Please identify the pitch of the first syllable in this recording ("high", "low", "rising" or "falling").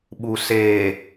low